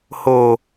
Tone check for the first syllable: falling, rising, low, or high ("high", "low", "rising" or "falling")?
low